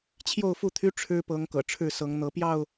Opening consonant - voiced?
no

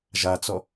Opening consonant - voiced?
yes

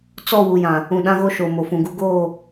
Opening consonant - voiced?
no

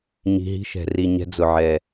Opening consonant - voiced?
yes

